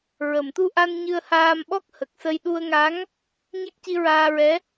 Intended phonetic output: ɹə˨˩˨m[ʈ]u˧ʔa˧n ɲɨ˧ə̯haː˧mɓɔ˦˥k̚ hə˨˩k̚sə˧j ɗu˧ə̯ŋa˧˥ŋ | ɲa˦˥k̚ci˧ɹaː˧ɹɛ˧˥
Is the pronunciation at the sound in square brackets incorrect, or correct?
incorrect